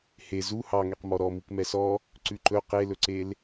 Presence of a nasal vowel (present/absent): absent